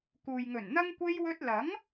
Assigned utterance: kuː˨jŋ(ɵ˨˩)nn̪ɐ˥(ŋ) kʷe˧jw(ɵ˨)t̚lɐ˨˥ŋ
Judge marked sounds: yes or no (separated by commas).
yes, yes, no